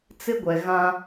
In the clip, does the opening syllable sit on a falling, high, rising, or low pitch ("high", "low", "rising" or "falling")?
high